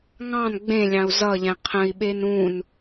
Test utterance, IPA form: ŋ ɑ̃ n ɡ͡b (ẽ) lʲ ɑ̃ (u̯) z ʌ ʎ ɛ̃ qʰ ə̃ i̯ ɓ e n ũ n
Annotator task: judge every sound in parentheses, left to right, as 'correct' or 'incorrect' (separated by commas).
correct, correct